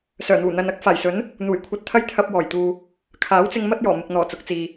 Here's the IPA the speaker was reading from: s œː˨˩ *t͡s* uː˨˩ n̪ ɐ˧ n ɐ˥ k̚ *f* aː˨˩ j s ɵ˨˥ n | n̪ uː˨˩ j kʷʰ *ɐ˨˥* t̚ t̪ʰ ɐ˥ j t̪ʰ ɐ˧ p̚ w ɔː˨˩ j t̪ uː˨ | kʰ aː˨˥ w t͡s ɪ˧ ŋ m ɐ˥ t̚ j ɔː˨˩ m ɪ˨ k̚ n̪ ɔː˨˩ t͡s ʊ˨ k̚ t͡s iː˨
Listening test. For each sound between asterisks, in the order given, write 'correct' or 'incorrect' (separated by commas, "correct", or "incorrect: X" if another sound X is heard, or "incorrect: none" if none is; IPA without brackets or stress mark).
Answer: incorrect: n̪, correct, incorrect: ɐ˧